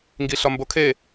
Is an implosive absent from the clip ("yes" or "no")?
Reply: yes